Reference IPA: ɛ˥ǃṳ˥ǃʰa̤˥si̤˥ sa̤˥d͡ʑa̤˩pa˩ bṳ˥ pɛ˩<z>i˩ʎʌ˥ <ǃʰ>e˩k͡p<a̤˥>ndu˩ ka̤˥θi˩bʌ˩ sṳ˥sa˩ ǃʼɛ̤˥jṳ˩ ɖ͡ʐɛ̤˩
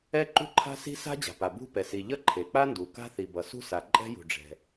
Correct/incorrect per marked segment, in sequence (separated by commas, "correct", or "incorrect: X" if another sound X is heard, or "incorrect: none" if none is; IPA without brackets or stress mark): incorrect: s, correct, incorrect: a˥